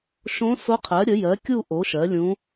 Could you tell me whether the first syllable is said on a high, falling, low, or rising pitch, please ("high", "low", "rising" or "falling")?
rising